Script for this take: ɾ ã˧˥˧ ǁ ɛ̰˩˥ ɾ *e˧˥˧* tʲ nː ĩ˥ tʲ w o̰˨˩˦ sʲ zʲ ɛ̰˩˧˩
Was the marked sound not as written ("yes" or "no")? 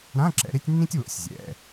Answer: yes